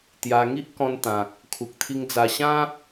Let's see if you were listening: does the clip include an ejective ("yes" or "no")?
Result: no